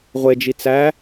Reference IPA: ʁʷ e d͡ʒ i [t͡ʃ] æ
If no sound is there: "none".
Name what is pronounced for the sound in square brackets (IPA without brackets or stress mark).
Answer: t͡s